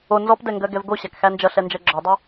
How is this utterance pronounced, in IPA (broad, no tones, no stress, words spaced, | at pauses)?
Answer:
o nzɔpdɛŋɡɜɡɛv ɡoɕækxæ nd͡ʒʌɬɛnd͡ʒɜ ɡ͡ǁɔdˤʌ